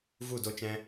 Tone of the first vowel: falling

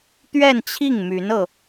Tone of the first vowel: falling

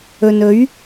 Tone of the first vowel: low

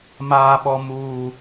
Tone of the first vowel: low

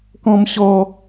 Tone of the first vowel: low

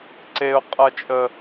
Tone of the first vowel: high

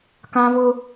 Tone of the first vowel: high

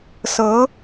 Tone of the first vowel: rising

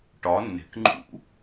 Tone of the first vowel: rising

